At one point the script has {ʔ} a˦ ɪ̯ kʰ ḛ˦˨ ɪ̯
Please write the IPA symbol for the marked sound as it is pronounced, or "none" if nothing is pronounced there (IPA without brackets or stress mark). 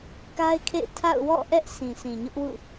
k